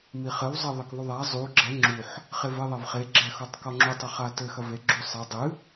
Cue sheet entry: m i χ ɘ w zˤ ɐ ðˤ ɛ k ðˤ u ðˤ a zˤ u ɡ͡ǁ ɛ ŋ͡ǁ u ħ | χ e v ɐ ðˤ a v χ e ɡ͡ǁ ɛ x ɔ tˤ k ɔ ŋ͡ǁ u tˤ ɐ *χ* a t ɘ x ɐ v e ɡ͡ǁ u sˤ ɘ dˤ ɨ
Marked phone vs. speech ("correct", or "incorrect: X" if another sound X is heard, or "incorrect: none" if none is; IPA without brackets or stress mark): correct